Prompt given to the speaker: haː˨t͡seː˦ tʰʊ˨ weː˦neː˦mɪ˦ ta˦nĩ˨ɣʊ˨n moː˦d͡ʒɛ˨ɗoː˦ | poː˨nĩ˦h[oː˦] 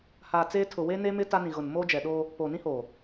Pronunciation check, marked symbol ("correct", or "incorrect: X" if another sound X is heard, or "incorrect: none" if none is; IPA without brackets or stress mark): incorrect: oː˨